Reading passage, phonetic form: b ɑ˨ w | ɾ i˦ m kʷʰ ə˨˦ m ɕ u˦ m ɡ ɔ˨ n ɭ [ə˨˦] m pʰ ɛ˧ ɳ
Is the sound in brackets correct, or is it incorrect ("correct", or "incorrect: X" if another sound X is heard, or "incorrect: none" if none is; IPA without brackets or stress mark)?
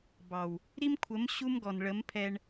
correct